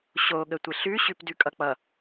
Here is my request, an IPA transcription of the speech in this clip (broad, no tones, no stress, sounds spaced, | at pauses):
ɕ o ɠ ə tʷ ɪ ɬ ʉ ɕ ʉ p d ʉ kʼ ʌ k͡p ʌ